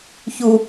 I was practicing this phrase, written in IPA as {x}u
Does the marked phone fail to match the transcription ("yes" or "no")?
yes